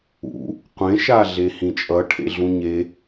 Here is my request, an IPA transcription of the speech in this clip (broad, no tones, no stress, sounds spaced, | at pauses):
ṵ | qʷ ẽ ʃ a ɮ e h ĩ t͡ʃʼ ʌ ʈʰ ḛ ɮ ũ ɲ e